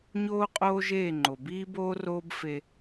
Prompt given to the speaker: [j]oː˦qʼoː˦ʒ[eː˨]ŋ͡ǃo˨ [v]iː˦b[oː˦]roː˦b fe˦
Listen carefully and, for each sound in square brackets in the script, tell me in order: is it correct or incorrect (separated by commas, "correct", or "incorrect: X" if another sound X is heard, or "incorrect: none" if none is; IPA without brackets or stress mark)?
incorrect: ɲ, incorrect: eː˦˨, incorrect: b, correct